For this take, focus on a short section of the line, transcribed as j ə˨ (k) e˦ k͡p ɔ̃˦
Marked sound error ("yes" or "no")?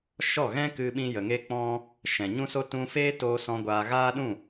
yes